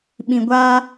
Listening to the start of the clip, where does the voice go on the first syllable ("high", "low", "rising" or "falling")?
low